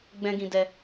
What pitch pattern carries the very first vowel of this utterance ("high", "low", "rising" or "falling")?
high